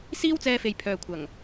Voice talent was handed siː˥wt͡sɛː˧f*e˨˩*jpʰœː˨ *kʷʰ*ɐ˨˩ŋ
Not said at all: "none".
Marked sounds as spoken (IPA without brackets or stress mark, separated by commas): e˨, kʷʰ